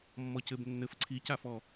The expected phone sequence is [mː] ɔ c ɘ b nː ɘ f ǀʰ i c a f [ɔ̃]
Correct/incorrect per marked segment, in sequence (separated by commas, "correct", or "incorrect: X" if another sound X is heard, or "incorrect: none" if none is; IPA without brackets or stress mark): correct, incorrect: ɔ